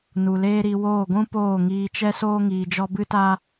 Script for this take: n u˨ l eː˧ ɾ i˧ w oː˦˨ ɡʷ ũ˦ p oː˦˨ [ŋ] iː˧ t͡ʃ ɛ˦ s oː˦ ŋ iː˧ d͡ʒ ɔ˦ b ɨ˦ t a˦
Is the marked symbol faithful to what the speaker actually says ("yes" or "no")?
yes